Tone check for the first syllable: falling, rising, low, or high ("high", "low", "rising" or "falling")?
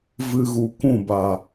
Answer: high